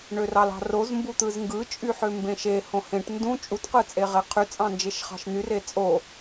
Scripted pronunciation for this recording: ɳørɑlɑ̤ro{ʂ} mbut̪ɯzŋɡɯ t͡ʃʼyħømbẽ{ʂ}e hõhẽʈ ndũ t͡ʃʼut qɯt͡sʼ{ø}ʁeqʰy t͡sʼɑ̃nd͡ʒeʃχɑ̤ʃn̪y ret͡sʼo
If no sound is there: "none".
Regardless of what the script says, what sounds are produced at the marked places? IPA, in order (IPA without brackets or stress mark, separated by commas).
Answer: z, ʃ, e